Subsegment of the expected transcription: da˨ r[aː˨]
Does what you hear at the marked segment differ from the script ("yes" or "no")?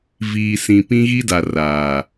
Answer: no